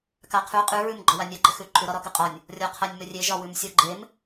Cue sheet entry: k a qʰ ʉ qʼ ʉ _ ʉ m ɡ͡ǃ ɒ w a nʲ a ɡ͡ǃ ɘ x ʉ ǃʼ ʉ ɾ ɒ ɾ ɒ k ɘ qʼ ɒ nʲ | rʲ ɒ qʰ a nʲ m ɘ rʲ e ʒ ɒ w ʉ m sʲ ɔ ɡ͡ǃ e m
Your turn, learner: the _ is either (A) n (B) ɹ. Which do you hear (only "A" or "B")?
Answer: B